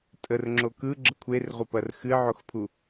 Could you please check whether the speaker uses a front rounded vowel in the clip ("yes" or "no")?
no